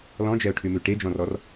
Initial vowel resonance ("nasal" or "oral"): nasal